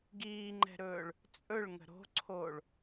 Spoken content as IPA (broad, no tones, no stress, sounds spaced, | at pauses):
ɡ iː ŋ͡ǃ ɛ̤ ɾ ɵː ɭ | t͡sʼ ɵ ɭ ŋ ə̤ ɾ o̤ ǀʰ oː ɭ